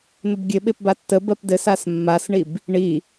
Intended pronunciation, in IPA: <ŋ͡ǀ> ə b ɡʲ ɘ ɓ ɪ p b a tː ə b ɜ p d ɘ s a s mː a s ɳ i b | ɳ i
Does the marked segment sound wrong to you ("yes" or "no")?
yes